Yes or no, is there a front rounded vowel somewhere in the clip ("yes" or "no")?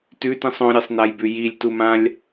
no